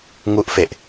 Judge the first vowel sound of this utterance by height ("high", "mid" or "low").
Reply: high